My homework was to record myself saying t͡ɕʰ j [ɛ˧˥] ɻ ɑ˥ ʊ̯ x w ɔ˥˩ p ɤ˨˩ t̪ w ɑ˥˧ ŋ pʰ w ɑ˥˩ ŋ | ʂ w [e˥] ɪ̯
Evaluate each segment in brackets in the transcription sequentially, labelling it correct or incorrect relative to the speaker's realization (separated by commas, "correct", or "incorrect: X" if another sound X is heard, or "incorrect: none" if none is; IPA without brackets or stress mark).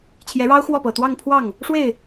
correct, incorrect: e˥˩